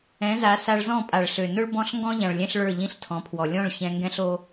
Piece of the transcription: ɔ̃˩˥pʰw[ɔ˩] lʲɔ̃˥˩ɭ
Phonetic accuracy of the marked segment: correct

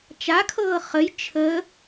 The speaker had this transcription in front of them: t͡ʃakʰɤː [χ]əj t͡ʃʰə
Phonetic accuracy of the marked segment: correct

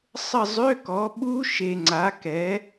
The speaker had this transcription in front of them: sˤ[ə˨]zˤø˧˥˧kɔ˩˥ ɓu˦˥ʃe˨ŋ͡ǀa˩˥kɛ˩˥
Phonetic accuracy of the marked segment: incorrect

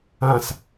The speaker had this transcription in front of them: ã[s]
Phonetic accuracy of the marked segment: correct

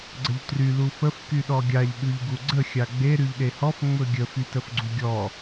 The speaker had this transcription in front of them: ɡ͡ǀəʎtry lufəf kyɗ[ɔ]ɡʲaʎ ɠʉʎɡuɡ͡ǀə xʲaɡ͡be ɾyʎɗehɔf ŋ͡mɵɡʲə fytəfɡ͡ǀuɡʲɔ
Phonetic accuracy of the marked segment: correct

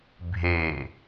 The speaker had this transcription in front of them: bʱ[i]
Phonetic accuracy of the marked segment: incorrect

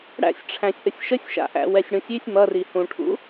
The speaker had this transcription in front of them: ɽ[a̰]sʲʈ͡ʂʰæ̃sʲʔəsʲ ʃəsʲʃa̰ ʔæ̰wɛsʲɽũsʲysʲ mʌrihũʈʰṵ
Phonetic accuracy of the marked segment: incorrect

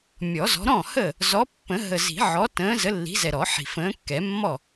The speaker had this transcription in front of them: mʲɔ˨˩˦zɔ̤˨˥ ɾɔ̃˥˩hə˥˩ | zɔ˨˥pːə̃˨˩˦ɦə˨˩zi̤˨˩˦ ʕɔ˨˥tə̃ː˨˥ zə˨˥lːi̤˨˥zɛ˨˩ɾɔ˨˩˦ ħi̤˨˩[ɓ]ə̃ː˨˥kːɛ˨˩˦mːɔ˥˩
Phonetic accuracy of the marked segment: incorrect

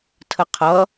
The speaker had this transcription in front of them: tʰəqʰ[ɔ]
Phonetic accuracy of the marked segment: incorrect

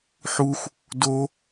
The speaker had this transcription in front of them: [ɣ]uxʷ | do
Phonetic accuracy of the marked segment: incorrect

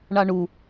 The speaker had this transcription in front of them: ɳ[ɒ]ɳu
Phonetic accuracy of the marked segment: incorrect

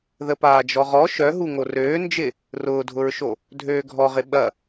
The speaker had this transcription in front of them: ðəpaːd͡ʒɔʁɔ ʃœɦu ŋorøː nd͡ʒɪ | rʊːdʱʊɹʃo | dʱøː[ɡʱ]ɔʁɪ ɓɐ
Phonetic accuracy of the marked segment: correct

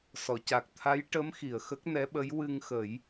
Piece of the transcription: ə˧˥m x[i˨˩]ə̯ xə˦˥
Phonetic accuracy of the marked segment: correct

